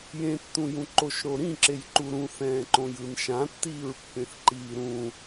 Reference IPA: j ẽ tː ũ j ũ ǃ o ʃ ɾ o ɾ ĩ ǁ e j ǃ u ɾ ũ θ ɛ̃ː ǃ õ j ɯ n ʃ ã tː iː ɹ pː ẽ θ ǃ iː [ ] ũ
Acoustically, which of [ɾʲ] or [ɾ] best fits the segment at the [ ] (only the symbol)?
ɾ